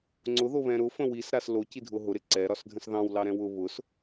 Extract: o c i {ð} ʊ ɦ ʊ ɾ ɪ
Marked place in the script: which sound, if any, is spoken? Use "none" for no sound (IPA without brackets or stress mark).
dʱ